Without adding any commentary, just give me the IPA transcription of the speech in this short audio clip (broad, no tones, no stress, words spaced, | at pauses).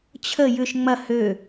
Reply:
t͡ɕʰə jʏʃ ŋ͡mɐ hø